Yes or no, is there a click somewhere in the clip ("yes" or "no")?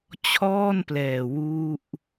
no